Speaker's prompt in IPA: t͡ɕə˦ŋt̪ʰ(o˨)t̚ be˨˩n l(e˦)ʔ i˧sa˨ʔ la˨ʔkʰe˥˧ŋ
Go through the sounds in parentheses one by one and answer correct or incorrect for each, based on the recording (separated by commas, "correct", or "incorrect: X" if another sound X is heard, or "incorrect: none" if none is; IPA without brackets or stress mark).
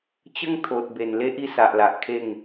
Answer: correct, correct